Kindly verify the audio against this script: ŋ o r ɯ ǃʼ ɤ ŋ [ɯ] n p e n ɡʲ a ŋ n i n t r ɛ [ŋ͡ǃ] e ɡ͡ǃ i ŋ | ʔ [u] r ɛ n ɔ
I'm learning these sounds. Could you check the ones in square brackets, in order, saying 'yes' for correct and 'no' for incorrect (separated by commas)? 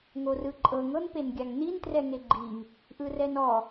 no, no, no